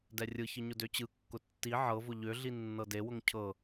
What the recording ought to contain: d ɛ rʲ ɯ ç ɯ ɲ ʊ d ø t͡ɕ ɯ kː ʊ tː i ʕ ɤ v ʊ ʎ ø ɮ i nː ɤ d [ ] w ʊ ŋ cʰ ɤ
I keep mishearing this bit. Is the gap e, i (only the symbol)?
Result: e